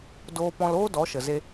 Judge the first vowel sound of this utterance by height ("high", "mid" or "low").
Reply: mid